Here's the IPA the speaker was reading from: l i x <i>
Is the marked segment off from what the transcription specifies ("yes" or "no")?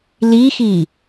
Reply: no